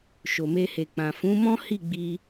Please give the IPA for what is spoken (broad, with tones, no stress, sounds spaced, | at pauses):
ʃ o˨ m e˧ h e˨ k͡p ã˨ f ũ˨˦ m ɔ̃˦ h i˦˨ ɡ͡b i˧